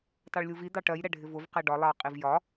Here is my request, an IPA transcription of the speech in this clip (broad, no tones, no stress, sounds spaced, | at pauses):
t ɑ ɭ lʲ u v i d̪ ɑ ʈ ɜ j ɾ ɛ ɖʱ ɪ v ʊ v q ɛ ɖ ɒ lˠ ɑ qʼ i v j ɒ